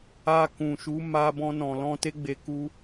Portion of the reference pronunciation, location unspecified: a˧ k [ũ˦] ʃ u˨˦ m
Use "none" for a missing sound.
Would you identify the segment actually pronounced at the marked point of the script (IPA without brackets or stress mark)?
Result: ũ˨